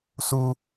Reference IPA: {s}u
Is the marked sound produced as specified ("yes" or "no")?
yes